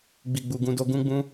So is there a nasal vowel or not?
yes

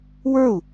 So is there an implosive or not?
no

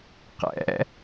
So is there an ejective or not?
no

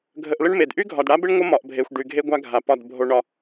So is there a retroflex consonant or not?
yes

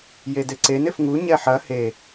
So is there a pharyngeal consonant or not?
yes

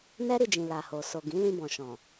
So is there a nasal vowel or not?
yes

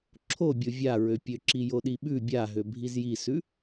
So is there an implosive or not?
yes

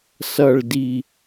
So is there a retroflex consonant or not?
yes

